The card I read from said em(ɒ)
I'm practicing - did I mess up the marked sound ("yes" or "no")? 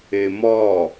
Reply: no